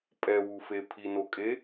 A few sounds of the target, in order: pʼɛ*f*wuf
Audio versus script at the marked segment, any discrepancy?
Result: yes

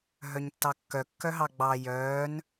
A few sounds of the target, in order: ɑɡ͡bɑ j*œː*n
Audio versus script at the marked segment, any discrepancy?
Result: no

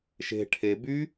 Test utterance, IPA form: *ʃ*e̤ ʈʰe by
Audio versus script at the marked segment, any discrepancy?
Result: no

